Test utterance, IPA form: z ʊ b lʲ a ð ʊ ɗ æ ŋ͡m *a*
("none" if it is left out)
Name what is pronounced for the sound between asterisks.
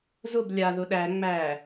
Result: æ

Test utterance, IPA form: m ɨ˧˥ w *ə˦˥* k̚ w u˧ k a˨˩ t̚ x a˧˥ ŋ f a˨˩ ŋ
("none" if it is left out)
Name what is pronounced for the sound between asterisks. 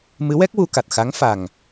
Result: ɛ˦˥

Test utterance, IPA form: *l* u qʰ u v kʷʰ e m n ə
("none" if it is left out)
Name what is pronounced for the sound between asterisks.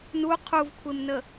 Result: n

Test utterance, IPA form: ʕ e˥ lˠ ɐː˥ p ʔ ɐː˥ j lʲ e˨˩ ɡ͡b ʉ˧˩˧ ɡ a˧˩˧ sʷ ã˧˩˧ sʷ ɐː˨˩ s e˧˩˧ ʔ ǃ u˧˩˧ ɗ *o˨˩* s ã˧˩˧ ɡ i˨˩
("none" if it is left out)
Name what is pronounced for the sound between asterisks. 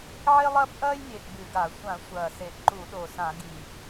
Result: o˨˩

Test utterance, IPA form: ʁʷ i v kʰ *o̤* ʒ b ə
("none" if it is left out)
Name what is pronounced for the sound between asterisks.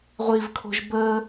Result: o̤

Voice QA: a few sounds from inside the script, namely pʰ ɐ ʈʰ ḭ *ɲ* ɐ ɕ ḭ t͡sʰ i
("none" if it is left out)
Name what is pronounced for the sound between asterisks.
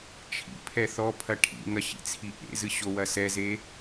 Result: ŋ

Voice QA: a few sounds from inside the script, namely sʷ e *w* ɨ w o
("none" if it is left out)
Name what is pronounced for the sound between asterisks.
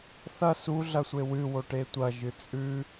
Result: w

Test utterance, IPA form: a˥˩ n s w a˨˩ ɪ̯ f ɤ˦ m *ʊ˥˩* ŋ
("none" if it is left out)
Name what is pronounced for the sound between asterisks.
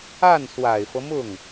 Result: ʊ˥˩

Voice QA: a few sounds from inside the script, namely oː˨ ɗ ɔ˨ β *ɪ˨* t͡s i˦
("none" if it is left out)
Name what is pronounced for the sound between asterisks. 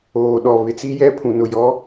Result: ɪ˨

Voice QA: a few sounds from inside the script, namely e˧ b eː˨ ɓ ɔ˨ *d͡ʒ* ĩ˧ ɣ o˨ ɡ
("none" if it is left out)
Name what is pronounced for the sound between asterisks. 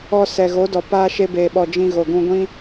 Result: d͡ʒ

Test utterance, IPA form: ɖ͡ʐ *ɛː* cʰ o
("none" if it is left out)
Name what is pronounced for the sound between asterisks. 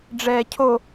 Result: ɛː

